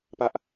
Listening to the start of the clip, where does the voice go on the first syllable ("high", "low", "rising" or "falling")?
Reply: high